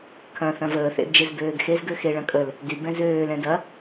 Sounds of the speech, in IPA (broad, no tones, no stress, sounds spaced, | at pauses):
kʰ ɐ̃ θ ɐ̃ v əː θ ḛ d d͡ʒ e z b øː ɡ x e z ɡ ø x e ɭ ɐ̃ kʼ ə l | d y b ɛ̃ z øː l ɛ̃ d ɐ